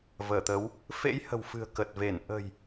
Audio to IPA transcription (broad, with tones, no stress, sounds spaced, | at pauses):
v əː˧˩ t̪ ə˨˦ w | f ḛ˧˥ j h ə̤˨˩ w f ɨ̤˨˩ ə̯ k ə˨˩ t̚ v e˧˩ n ʔ ə̤˨˩ j